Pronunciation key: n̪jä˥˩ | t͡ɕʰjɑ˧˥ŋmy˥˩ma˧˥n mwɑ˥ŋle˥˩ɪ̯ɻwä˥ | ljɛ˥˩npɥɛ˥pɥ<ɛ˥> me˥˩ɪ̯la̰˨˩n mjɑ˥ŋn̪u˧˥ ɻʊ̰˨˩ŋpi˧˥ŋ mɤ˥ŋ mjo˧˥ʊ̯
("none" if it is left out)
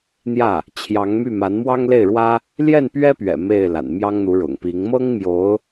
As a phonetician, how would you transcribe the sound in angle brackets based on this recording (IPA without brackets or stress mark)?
ɛ̰˨˩